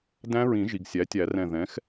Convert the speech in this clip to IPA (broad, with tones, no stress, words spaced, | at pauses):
dæ̃˦˥ɹĩ˨˩˦ʒi˩ɡ sʲæ˩˥tʲæ˨˩˦rɛ̃˧˩ ðɛ̃˩˥x